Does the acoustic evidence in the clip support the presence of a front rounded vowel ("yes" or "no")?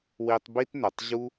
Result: yes